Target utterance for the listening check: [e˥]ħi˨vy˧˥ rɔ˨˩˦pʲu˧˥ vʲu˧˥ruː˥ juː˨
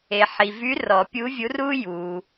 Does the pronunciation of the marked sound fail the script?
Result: yes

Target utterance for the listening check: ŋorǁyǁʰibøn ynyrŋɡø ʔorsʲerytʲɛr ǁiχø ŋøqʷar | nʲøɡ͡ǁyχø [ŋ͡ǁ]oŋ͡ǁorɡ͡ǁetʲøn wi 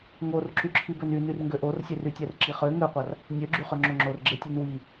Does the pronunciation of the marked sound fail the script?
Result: no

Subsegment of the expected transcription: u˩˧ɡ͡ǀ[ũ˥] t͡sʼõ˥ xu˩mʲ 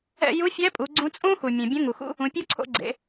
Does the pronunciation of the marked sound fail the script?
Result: yes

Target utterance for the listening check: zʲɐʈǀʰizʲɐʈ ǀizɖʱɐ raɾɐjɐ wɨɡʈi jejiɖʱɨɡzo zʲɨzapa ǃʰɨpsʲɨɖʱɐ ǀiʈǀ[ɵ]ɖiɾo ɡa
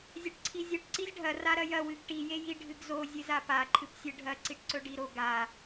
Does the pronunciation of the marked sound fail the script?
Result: no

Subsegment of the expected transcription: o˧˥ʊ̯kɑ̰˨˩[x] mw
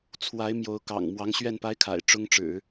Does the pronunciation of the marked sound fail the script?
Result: yes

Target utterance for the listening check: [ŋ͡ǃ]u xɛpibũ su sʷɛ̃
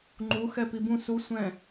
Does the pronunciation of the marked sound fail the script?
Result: no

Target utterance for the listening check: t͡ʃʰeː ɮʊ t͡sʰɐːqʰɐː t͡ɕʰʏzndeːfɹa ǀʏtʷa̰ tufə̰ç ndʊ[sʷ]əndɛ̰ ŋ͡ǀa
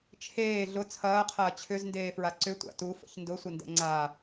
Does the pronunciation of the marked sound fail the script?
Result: no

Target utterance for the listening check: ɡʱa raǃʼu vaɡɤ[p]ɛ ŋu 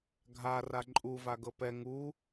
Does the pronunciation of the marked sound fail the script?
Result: no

